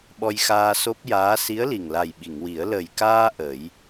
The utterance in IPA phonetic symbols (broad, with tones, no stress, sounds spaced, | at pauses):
ɓ ɔ˧ j x aː˧ s o˦˥ p̚ j aː˧˥ s i˧˥ ə̯ l i˨˩ ŋ l a˨˩ j ɓ i˨˩˨ ŋ w i˨˩˦ ə̯ l ə˨˩ j k aː˧ ʔ ə˨˩˦ j